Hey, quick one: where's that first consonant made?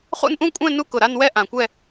uvula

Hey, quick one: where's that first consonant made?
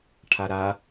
retroflex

